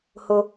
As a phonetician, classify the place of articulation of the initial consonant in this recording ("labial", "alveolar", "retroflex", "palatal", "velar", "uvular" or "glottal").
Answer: glottal